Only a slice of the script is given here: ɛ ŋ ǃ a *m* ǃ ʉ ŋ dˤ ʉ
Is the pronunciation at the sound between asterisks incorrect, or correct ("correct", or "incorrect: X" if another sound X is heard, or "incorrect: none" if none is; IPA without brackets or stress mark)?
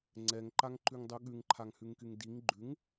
incorrect: ŋ